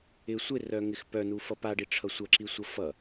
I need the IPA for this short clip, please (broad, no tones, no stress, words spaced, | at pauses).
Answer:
ɪ sʷɪrœŋɪx pœnufʌ paɖiʈ͡ʂʰʌ sʷʌǁisʷʌ fʌ